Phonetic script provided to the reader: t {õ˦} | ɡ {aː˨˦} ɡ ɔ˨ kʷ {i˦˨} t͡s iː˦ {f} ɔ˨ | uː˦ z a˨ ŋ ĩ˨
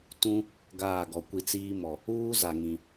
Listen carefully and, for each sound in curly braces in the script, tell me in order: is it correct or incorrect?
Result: incorrect, incorrect, incorrect, incorrect

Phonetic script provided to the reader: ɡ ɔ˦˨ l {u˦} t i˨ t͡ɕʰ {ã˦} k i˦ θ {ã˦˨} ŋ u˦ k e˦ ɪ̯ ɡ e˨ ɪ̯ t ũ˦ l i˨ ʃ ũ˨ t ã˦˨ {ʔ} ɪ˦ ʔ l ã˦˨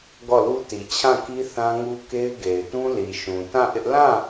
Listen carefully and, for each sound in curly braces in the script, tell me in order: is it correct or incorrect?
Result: correct, incorrect, incorrect, correct

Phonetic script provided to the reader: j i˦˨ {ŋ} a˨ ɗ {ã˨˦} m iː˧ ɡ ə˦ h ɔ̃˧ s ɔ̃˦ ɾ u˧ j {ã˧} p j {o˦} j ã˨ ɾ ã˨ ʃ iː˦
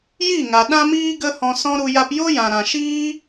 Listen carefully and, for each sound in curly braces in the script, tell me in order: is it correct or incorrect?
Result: correct, incorrect, incorrect, correct

